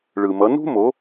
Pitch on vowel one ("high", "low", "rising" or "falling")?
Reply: low